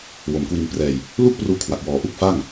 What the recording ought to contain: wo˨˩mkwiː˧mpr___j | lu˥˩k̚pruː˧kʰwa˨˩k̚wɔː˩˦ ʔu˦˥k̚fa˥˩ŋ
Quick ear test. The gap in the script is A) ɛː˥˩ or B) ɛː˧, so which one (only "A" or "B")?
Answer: B